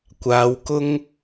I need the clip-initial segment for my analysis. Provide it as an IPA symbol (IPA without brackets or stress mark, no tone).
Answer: kʷ